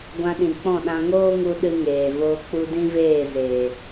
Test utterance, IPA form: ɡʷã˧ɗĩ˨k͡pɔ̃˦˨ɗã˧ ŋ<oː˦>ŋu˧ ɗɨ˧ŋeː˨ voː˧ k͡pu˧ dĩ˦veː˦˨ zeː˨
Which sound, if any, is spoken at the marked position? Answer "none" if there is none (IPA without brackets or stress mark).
oː˦